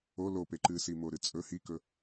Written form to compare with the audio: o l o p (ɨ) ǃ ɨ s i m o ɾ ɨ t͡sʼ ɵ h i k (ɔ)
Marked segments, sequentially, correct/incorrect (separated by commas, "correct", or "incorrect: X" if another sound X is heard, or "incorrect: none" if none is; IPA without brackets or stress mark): incorrect: e, incorrect: ɵ